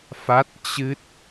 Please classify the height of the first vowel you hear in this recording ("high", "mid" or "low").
low